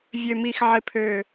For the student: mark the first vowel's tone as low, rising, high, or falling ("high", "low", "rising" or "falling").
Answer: low